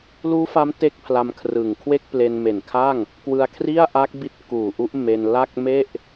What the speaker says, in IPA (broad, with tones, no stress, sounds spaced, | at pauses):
l uː˦˥ f a˦˥ m t e˥˩ k̚ pʰ l a˧ m kʰ r ɯ˨˩ ŋ kʰ w e˥˩ k̚ p l e˧ n m e˨˩ n kʰ a˥˩ ŋ | k w ɯ˧ a̯ kʰ r i˥˩ a̯ ʔ a˦˥ k̚ b i˦˥ t̚ k uː˨˩ ʔ u˦˥ ʔ m e˧ n l a˥˩ k̚ m e˥˩ ʔ